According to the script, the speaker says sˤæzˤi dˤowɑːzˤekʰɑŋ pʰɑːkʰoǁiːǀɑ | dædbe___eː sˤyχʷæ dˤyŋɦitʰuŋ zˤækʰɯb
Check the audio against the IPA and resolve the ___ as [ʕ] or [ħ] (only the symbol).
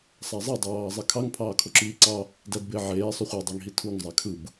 ʕ